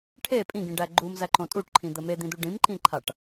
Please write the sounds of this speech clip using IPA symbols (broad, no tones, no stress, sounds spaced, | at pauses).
ʈʰ e pʼ ĩ ɡ ĩ ɖ æ ɡ͡ǃ u m z æ ǃ õ tʼ u ʈ ǃʰ ĩ d̪ ə m e d̪ ĩ d̪ u ɖ ĩ m ǃ ĩ ǃʰ a ʈ